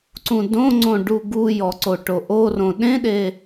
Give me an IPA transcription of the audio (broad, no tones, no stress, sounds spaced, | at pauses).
ǀ ũ d õ ŋ͡ǀ õ ɖ u ɡ u j ɔ ǀ o ʈ o ʔ o r õ ɗ ẽ ɗ e